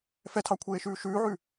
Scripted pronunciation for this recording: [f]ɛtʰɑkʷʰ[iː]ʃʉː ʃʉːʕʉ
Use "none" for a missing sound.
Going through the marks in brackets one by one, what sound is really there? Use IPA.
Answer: f, eː

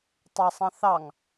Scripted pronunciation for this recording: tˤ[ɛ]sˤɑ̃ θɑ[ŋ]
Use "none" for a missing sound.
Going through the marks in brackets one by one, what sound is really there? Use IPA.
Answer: ɛ, ŋ

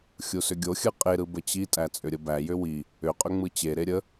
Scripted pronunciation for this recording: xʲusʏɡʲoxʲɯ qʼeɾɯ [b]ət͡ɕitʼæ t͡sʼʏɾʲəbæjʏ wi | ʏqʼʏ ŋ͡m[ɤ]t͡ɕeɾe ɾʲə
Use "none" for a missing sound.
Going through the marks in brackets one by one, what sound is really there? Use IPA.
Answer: b, ɯ

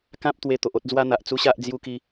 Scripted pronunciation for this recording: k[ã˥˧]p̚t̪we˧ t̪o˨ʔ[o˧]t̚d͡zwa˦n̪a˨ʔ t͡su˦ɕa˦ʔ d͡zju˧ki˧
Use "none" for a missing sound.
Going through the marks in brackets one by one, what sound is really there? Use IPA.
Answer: ã˦, o˦

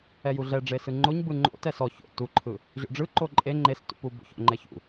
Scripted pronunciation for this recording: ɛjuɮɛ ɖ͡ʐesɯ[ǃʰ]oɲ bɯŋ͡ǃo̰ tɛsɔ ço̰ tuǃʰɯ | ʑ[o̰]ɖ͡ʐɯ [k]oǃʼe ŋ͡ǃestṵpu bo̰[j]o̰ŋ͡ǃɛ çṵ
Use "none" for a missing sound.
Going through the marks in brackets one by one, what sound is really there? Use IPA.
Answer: ŋ͡ǃ, o̰, ǃ, ç

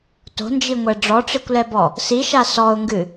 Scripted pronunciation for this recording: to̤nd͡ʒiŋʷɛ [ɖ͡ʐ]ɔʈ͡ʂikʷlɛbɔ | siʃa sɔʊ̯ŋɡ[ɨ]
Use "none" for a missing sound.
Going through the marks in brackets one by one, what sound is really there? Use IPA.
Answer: ɖ͡ʐ, ɨ

